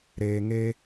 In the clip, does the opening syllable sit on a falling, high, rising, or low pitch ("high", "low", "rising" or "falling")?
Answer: low